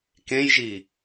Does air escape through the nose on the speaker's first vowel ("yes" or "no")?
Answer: yes